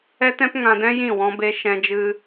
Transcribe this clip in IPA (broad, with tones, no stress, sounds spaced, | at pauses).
ɛ˦ t ɛ̃˦ p ŋ ã˧ d ɛ̃˦ j ĩ˦˨ w ɔ̃˦ b e˦ ʃ ɛ̃˧ d͡ʒ ɨ˧